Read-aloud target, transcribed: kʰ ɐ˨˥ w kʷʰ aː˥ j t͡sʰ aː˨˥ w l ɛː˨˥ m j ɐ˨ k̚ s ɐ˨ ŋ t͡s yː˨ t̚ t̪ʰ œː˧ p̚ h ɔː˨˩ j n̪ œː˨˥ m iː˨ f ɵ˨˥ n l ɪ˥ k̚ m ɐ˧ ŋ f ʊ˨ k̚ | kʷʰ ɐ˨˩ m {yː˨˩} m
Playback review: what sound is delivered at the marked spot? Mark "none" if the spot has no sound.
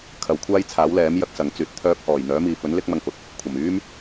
yː˥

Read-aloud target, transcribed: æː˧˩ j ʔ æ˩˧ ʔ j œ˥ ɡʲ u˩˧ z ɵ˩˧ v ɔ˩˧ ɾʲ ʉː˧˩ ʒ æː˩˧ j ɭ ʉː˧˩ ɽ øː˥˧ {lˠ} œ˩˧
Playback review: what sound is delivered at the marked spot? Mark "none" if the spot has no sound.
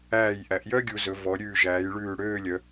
lʲ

